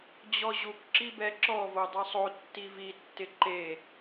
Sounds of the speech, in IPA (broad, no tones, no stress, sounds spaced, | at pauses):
d͡ʑ ɔ ʑ u k ǁ i b ɛ ǁ ɔ v o dˤ e sˤ o tː i v i tː ɪ ǃ e